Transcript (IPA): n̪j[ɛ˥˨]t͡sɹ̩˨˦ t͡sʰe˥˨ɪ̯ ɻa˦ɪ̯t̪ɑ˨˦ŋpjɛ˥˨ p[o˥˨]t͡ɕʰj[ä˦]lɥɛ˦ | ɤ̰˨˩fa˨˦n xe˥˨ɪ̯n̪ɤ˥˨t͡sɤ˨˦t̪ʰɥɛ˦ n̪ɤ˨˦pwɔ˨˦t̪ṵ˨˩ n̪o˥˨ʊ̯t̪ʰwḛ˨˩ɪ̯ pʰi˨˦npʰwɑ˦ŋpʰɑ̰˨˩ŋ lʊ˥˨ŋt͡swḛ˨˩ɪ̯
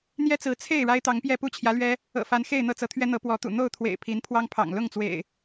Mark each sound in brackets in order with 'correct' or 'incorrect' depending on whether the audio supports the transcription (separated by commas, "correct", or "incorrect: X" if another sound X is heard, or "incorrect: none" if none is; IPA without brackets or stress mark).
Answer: incorrect: ɛ˦, incorrect: u˥˨, incorrect: ä˨˦